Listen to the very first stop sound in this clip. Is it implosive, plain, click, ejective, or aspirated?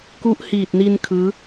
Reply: plain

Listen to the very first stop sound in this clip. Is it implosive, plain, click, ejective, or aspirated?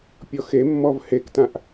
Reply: plain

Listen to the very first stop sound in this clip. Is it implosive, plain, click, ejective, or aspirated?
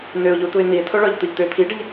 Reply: plain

